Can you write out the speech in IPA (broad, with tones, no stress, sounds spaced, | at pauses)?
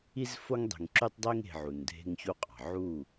i˦ z f o˦ ŋ dˤ e̤˨ ŋ ǁ y˦ tˤ dˤ i˦ ŋ e̤˨ ʕ u˨ n dʱ e̤˦ ŋ ç u˦ qʼ ɑ̤˨ ʕ u˦˨